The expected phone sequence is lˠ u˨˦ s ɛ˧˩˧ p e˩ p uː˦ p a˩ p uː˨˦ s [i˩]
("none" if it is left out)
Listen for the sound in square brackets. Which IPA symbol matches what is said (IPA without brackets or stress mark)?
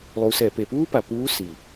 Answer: i˩